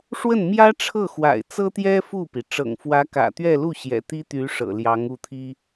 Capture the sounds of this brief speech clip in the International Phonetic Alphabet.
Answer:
ʂwə˥˩nmjä˥ʈ͡ʂʰɤ˥˩xwa̰˨˩ɪ̯ t͡sɤ˥t̪jɛ˥ fu˥˩pi˩ ʈ͡ʂɤ̰˨˩ŋfwä˧˥kä̰˨˩ t̪ɥɛ˥˧lu˥˩ ɕjɛ̰˨˩t̪i˥ t̪y˧˥ ʂɤ̰˨˩ljɑ˧˥ŋu˥˩t̪ʰi˥

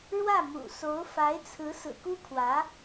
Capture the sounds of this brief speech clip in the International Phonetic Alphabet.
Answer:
ɻwä˥˩mṵ˨˩so˧˥ʊ̯ fa˧˥ɪ̯t͡sʰɹ̩˧˥ sɹ̩˨˩ku˥kʰwä˧˥

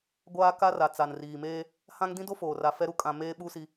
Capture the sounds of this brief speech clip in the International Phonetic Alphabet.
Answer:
ɡʷaː˦ka˦ra˨ t͡sa˨nriː˨meː˦ | hã˦ŋ dĩ˦do˦foː˨ ra˨ fɛ˦ɾu˦ kʼã˨ meː˦ɓu˦si˦

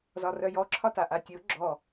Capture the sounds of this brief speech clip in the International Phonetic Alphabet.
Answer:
zɒrœjɔ ǁʰɒtaʔatʲɨʊ̯ ɡ͡ǁɔ

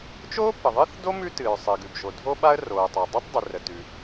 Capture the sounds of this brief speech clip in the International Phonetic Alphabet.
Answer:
t͡ʃoː˥pə˩ðˤɨ˥θdo˥ mʉ˥tɨː˩ɹsˤɨ˩ɡʉ˩b ʒo˩dʱo˥ɓa˥ə̯ roː˩tˤa˩dˤo˥tˤdˤɨ˩ rə˩tʉ˩

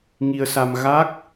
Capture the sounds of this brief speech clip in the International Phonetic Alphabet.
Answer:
ŋi˧ə̯sa˧m ɣa˦˥k̚

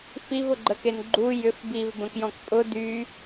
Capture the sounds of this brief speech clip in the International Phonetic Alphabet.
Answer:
fivʊɡ͡ǃəken ɡ͡ǃu jʏf bivbə̃kjɔ̃k pʼʊ dy

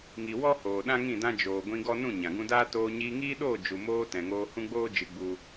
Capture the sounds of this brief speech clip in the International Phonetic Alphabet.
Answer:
ŋi˨ wɔ˦hoː˨ ɗã˦ŋĩ˦˨dã˦ d͡ʒoː˨ ɡʷĩ˧ɡɔ˦ nũ˦˨ɲã˨ɡũ˧daː˦ toː˧ ɲiː˧ŋiː˦ɗoː˦˨ d͡ʒu˨moː˧ tɛ̃˨ŋoː˧ hũ˦ɡ͡boː˦ d͡ʒɨ˧ɡ͡bu˧

